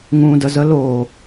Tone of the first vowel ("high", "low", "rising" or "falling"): low